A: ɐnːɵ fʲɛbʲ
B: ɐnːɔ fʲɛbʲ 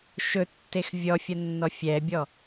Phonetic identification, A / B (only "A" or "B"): B